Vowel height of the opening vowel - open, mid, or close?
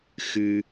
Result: close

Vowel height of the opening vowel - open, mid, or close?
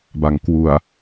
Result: open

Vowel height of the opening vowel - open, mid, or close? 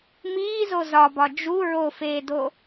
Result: close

